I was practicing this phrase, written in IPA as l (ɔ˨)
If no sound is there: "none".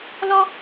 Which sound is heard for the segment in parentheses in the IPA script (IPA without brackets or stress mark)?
ɔ˦